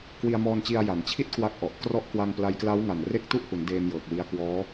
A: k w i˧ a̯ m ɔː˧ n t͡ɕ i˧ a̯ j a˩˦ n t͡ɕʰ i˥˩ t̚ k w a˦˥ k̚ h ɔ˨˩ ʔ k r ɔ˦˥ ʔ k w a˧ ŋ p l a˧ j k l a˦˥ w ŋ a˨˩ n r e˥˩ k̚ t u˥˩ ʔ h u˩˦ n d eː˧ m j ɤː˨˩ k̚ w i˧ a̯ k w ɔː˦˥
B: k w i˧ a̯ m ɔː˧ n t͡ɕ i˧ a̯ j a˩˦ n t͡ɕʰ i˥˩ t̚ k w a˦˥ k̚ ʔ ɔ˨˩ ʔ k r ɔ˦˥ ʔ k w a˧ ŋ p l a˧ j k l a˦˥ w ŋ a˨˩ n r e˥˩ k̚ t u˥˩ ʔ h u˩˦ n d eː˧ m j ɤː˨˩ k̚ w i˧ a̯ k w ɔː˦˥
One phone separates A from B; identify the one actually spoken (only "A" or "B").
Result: B